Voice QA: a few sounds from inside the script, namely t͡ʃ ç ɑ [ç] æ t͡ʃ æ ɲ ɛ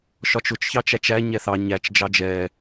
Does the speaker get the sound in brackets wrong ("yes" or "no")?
yes